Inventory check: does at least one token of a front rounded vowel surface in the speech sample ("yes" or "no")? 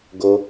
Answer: no